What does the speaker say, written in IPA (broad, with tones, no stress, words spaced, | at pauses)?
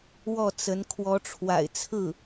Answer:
wɔ˥˩t͡sə˧˥n kʰwɔ˧˥ʈ͡ʂʰwa̰˨˩ɪ̯ t͡sʰɹ̩˥˩